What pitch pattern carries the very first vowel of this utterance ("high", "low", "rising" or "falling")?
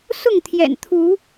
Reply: falling